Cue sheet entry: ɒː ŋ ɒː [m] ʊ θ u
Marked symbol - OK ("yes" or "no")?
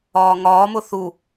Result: yes